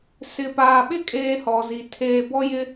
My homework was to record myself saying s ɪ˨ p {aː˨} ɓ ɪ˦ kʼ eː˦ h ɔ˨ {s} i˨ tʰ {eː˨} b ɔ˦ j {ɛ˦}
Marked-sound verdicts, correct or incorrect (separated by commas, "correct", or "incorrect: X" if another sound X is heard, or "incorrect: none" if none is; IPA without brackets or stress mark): correct, incorrect: z, correct, incorrect: ɪ˦